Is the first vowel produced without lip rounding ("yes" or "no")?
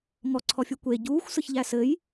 no